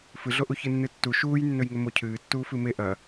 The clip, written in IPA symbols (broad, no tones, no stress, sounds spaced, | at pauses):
f ɨ ɮ o ʔ u ç ɨ nː ɨ tː u ʃ uː j nː ɵ j ŋ ɵ m o cʰ ɨː tː uː f ɨ m e ʔ ɐ